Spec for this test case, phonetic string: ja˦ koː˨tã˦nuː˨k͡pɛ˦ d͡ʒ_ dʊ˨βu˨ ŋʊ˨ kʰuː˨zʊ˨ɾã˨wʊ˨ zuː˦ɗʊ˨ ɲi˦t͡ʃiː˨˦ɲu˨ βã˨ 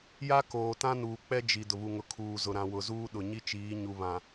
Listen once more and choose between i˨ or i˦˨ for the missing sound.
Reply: i˨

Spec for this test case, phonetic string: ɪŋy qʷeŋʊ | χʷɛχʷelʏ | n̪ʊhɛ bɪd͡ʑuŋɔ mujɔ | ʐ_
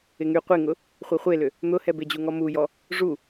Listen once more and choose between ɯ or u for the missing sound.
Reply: u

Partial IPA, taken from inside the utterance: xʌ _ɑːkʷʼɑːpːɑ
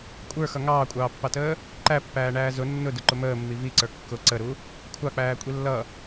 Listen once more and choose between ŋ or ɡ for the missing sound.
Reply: ŋ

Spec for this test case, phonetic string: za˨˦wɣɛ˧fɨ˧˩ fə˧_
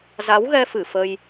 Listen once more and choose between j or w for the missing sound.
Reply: j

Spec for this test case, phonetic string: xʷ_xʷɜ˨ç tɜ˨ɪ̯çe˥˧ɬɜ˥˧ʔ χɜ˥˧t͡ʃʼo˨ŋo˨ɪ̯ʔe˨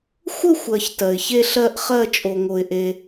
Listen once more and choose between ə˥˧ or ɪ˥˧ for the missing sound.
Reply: ə˥˧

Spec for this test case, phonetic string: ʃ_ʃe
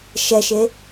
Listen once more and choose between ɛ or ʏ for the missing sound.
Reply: ɛ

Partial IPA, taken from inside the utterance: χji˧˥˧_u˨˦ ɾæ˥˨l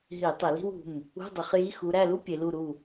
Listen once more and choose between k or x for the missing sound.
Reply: x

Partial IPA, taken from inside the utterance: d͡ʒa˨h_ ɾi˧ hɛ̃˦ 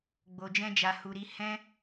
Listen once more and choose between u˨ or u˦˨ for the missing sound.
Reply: u˨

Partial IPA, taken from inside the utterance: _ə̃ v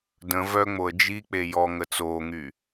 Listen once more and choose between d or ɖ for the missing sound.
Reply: d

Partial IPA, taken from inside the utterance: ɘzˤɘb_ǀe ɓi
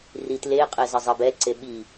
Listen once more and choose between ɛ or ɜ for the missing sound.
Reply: ɛ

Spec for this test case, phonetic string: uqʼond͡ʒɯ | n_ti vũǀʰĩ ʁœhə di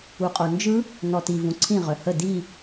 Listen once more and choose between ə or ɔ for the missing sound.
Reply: ɔ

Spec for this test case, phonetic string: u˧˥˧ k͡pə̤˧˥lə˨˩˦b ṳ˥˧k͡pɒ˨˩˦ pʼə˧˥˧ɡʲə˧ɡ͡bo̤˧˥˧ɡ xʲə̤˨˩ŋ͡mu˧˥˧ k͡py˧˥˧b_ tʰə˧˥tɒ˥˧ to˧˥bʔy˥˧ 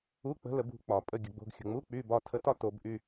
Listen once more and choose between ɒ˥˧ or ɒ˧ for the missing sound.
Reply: ɒ˥˧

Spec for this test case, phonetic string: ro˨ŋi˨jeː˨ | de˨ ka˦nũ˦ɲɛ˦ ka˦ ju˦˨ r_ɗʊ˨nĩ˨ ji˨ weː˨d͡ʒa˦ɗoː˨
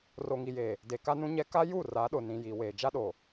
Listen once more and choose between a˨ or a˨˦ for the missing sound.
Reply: a˨˦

